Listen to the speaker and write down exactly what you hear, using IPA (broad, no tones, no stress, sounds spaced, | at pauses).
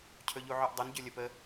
cʰ ɵ ʎ u ʕ ɵ ʔ dˤ ə n ɟ ɵ lʲ ə p ə